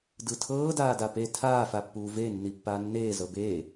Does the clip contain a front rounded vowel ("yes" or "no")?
no